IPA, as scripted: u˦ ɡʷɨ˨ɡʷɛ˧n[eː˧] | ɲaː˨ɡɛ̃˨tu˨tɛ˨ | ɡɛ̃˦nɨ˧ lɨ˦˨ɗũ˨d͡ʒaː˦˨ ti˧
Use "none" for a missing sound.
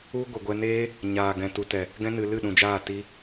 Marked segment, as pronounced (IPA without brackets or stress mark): eː˦